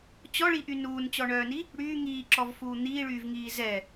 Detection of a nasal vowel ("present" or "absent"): absent